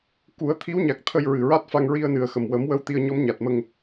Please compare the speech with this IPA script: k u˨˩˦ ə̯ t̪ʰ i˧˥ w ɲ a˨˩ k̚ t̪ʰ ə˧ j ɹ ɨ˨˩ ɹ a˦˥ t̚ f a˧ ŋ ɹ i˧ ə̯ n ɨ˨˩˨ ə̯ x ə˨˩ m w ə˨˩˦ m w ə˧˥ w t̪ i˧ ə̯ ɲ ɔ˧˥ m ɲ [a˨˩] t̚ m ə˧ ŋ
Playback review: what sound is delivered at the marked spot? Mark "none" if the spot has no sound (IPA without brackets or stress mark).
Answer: a˨˩